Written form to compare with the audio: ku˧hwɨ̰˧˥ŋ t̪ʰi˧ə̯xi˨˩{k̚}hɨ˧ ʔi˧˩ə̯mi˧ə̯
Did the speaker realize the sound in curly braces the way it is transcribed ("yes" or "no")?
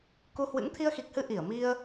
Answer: yes